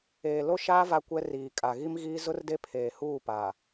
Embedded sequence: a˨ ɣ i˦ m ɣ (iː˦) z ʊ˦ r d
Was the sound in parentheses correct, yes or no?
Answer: yes